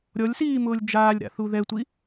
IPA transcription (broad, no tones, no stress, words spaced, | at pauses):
ɾʲɔlʲsiːmʊːlʲ d͡ʒaːlʲɾa̰θu ðɛtʷi